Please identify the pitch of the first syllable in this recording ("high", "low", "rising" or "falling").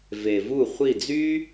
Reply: low